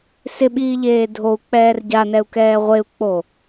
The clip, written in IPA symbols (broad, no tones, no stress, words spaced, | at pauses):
sɪɓiːʎeː dʱou̯k͡pɛːr ɟanɛu̯kɛː ʁʷeu̯k͡po